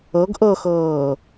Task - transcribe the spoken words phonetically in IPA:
ɤ ɡ ʔ ɤ x ɤː

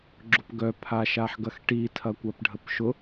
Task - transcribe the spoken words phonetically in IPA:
ɡ͡ǁ ʊ p ɡ œ pʰ a ʃ a ħ ɡ ɐ x ʈ i tʰ ɐ kʷ a p ɖʱ ə p ʃ ʊ

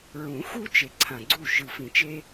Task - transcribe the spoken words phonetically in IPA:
ɹ ũ˨˩˦ x u˦ t͡ʃ e˨˩ ǀʰ ã˨˩ ɡ͡ǀ u˥˨ ʃ ɯ˨˩ f ĩ˨˩˦ t͡ʃ e˦

